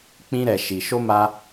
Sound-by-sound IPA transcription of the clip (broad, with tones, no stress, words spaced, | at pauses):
k͡pĩ˦ɾɛ˧ʃi˧ ʃo˦ ma˦